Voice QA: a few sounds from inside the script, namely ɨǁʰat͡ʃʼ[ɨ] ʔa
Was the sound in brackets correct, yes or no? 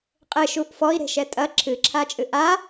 yes